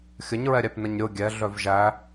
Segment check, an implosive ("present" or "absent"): absent